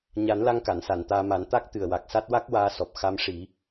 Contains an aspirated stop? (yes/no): no